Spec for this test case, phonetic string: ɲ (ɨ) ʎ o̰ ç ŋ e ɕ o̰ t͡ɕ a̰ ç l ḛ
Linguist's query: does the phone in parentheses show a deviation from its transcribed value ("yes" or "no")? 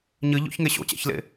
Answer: no